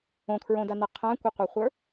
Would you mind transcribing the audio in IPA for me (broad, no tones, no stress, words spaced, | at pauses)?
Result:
õkʰɹõdana qʰãkʷɪqʷə˞χʷə˞